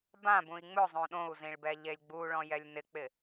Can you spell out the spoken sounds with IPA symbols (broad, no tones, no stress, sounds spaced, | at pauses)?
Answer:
b ã b ũ i̯ ŋ͡m ʊ zˤ õ ɗ õ u̯ z ĩ ɭ b ɛ ʎ e lʲ ɡ͡b u ɭ ɔ̃ j ɛ lʲ n ɪ k͡p ɪ